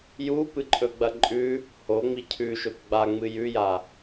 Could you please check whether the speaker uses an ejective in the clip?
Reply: yes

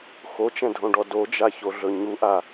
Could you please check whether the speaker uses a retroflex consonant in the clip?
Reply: yes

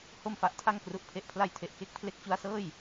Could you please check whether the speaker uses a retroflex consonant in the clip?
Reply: no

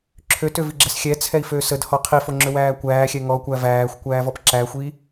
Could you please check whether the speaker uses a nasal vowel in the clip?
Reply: no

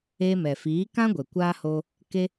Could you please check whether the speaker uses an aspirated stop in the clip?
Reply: no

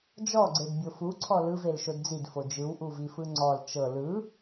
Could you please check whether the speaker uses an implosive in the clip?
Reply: no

